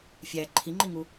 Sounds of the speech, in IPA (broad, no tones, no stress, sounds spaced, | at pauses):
fʲ æ ǃʰ i ŋ͡ǃ i ŋ u